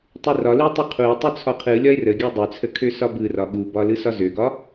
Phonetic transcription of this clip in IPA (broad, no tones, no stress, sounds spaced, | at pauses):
tˤ u r ɒ l u tˤ u qʰ u e̯ tˤ u t͡sʰ ɒ qʰ ɯ lʲ ɒ e̯ r ə ɡʲ u dˤ ø t͡sʰ ə kʰ ø s ɒ b ɯ r ɒ ɠ u b ɒ l ɯ s ɒ z ø ɡ ɒ